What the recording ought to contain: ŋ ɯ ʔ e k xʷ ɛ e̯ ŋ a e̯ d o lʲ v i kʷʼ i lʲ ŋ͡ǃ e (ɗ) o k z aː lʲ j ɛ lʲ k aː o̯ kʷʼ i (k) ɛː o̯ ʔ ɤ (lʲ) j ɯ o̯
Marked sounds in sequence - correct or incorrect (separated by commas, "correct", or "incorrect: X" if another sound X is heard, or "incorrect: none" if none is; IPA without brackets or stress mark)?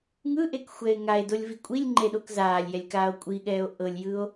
correct, incorrect: ɠ, correct